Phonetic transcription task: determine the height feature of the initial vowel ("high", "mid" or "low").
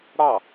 low